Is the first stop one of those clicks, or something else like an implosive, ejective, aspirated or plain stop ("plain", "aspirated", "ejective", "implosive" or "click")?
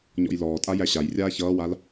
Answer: ejective